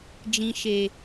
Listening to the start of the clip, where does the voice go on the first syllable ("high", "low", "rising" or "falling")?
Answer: low